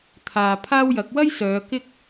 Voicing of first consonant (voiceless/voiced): voiceless